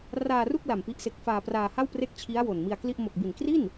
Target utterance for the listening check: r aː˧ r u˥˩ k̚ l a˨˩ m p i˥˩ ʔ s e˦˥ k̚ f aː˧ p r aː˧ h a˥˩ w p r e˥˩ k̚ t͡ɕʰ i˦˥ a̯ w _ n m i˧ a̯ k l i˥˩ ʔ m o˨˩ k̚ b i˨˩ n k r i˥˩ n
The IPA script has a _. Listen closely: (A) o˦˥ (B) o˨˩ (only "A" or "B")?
B